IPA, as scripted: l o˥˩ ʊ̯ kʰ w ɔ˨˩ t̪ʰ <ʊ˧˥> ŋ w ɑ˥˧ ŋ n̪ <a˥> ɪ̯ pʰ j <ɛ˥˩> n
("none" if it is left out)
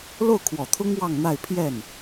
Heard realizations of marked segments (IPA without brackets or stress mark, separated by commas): ʊ˥, a˥˧, ɛ˥˩